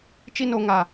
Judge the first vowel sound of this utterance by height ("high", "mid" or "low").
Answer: high